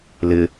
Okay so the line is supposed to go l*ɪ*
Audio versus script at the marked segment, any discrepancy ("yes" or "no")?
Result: no